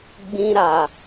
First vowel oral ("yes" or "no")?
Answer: no